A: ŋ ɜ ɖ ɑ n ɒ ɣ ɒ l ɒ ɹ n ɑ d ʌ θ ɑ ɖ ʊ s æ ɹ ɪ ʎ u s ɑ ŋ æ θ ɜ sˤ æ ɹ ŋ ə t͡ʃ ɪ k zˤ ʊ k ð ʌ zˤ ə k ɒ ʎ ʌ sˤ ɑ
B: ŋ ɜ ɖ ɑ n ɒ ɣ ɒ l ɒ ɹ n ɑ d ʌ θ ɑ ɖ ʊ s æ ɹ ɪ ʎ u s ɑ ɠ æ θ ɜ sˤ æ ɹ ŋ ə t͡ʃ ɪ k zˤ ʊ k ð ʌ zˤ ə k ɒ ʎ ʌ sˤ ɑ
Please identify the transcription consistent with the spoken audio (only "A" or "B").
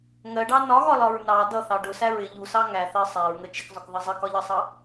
A